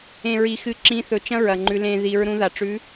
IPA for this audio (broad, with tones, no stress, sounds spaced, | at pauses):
ẽ˩ ɹ i˩ x ɨ˩˧ ǁ ĩ˩˧ θ ɵ˩ t͡ʃ ɐ̃˥ ɹ ɐ˩ ŋ͡ǃ ʉ˩˧ l ẽ˧ ð i˩˧ ɹ ɾ ũ˧ ð a˩ ʈ͡ʂ ʉ˧˥